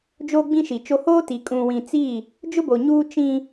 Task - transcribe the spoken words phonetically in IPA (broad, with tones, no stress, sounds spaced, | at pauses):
d͡ʒ oː˦ ɡ͡b ĩ˦ ʃ i˨ t͡ʃ o˦ h oː˦ t i˨ kʼ ũ˨ w ĩ˨ t͡s i˦˨ | d͡ʒ ʊ˦ b o˨ ɲ uː˦ t͡ʃ ĩ˦